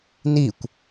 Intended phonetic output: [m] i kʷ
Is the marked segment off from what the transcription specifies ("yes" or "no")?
yes